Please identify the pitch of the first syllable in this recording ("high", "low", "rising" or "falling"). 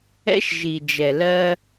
high